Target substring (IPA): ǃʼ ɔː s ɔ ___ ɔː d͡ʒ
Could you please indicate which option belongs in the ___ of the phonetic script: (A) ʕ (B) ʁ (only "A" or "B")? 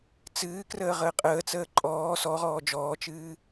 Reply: B